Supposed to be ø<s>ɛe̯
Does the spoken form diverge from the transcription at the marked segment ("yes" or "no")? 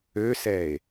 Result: no